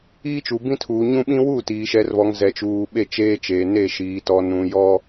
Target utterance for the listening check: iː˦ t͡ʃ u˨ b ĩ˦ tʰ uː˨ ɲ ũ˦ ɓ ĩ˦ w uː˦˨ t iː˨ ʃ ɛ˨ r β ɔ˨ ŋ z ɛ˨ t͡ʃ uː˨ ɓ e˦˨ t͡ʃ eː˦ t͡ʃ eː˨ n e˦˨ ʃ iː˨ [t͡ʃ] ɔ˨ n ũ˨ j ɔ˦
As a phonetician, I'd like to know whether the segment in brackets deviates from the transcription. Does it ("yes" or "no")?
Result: yes